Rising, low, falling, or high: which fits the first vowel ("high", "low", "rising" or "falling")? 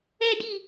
high